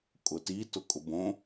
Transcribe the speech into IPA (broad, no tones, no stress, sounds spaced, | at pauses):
kʼ ʊ t i t ʊ kʼ ʊ b õ